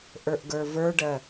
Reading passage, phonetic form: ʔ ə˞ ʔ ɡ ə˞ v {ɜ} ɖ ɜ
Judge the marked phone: incorrect: ə˞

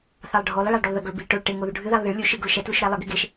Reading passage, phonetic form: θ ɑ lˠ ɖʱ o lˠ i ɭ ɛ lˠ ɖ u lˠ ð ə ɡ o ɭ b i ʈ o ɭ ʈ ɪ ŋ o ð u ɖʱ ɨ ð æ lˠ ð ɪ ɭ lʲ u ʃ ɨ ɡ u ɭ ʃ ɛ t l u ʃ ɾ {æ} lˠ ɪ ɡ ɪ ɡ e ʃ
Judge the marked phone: correct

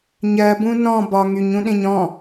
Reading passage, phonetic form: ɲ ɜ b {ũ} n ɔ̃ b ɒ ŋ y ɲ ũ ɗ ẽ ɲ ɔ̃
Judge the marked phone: correct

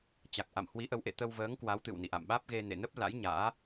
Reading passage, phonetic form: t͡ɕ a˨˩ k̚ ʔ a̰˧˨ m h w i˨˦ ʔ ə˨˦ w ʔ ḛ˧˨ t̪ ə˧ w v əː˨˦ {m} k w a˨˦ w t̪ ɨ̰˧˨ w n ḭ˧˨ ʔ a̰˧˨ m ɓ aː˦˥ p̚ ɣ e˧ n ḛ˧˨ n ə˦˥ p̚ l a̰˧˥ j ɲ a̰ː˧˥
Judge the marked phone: incorrect: ŋ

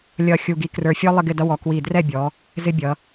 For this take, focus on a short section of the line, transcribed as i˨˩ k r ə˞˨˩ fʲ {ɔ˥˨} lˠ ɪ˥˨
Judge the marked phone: incorrect: ɔ˦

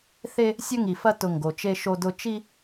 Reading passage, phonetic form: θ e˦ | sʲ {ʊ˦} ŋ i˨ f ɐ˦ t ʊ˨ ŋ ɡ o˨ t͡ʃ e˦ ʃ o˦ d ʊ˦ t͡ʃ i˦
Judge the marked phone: incorrect: ɵ˦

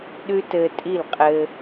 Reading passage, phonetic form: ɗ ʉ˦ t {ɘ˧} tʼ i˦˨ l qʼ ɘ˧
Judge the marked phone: correct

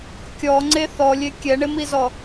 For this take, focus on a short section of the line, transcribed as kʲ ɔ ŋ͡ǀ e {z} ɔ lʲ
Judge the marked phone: incorrect: θ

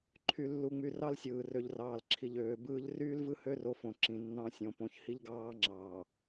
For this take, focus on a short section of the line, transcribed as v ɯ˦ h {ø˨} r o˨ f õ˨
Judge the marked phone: incorrect: ø˦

